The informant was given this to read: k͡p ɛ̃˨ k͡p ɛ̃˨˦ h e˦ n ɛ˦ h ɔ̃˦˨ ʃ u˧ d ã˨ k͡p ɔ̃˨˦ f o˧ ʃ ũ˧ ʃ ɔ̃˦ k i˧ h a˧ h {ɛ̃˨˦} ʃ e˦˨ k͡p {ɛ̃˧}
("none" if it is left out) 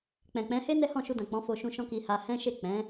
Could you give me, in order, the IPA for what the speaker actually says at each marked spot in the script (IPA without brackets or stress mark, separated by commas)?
ɛ̃˦, ɛ̃˨˦